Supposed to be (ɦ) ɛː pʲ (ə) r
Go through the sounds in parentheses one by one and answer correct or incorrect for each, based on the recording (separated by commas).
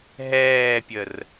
correct, correct